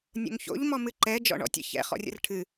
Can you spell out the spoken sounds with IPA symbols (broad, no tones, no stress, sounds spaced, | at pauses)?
nʲ o̰ ŋ ç o̰ ʎ m ɔ m ɨ ǃ ɛ d͡ʒ ɔ̰ ɳ ɔ̰ tʲ ə̰ ç ɛ̰ χ ɔ̰ rʲ ə̰ r ʈʰ ɨ